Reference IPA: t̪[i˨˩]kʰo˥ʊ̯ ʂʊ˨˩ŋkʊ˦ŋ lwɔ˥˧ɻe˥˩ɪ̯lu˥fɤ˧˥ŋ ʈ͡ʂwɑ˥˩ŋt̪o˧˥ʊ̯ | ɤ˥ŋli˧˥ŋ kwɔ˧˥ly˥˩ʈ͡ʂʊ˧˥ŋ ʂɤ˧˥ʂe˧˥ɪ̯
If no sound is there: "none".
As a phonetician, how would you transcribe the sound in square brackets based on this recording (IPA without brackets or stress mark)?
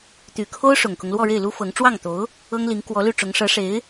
y˨˩